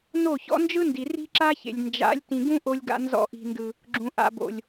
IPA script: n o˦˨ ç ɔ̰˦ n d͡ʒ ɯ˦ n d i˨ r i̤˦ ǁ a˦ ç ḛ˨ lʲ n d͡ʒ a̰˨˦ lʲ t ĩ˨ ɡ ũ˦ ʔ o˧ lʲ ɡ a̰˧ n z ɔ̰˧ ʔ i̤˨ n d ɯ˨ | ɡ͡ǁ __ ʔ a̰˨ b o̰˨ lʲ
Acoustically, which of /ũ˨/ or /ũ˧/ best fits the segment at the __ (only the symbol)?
ũ˨